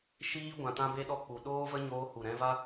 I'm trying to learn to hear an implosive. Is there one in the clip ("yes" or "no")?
yes